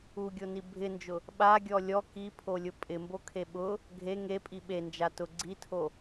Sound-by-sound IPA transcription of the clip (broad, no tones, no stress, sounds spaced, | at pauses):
u ɡʲ o n i bʱ ɪ n d͡ʒ ʊ | ɓ a ɡʲ ɔ lʲ ɔ k i pʰ o lʲ ʊ pʼ ɪ m b o kʰ e ɓ ʊ | ɡʱ e ŋ e pʼ i ɓ e n d͡ʒ a t ʊ ɡ͡ǀ i tʰ o